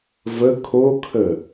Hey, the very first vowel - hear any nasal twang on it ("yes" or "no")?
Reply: no